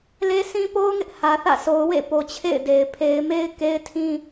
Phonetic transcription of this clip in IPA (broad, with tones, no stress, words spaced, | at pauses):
le˦sĩ˦ po˦ʊ̯ŋɪ˦ʔ hä˨θä̰˦˨sʰo˨ʊ̯ wḛ˦˨po˨t͡ɕʰḛ˦˨ɪ̯ de˨ɪ̯ pʰe˨ɪ̯me˦ɪ̯ ke˦ɪ̯tʰĩ˦